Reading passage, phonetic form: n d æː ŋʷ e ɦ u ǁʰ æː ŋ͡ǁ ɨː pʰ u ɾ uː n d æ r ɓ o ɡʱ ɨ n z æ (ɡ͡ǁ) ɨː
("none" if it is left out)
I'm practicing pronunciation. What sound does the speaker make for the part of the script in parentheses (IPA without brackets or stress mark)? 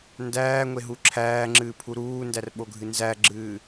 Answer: ɡ͡ǁ